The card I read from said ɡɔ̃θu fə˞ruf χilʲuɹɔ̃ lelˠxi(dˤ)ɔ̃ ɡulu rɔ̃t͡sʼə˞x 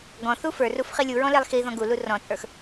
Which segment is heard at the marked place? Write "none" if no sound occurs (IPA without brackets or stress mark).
ð